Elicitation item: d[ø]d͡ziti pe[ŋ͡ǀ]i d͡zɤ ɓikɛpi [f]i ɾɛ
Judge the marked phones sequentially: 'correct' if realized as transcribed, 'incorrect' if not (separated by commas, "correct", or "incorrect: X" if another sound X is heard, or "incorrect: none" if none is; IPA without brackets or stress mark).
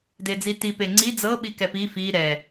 incorrect: e, correct, correct